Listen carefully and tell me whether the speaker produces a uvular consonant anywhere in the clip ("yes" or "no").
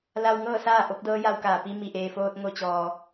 no